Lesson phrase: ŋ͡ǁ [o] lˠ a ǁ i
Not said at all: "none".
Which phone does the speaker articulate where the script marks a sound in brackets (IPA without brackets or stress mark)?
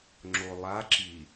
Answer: o